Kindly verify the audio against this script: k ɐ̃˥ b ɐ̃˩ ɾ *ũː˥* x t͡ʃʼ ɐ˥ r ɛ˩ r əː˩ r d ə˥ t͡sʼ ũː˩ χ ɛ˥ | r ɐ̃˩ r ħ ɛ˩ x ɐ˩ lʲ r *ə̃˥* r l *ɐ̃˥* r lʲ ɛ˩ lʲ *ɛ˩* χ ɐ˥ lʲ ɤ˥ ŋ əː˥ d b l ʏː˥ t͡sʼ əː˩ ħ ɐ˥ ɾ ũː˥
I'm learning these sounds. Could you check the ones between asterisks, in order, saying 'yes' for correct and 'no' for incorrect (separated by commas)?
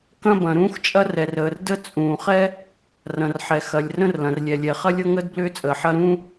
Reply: yes, yes, no, yes